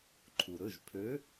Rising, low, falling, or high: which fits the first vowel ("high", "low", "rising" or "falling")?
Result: low